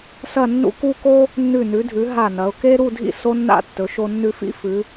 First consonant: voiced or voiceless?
voiceless